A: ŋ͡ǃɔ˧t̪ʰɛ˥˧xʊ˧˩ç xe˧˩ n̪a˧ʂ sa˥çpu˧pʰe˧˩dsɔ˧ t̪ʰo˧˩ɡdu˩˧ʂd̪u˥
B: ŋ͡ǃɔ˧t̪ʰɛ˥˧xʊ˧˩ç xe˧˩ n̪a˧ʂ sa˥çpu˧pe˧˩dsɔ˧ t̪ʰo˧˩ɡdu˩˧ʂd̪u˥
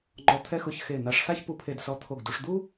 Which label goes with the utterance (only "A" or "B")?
A